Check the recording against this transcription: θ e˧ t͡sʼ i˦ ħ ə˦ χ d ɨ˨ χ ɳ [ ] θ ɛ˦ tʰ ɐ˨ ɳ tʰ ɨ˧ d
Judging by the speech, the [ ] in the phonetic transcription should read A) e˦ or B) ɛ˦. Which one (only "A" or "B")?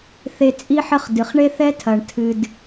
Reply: A